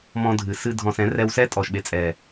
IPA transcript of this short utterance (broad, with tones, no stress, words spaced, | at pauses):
mɔ̃˧dʱɨ˨sɨ˧ dʱɔ̃˨s ɛ̃˨˦rɛ˧wsɛ˦tʼɔ˨ʃ ɓe˨t͡sʼɛ˨